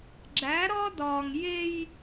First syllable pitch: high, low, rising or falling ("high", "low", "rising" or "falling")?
rising